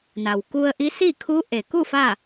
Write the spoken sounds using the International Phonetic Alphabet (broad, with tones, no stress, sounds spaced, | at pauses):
n a˩ w k u˧ ə̯ ʔ i˧˥ s i˥˨ kʰ u˧˥ ʔ e˩ k u˥˨ f a˥˨